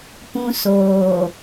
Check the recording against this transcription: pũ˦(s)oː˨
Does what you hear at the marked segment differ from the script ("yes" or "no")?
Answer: no